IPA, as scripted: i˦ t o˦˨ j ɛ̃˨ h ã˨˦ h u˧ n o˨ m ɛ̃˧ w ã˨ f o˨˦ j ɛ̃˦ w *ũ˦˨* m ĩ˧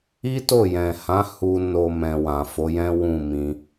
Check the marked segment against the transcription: correct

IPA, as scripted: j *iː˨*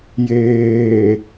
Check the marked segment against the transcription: incorrect: eː˨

